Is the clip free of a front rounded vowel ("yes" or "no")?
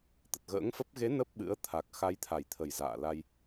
yes